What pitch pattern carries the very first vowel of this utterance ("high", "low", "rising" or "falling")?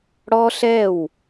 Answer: high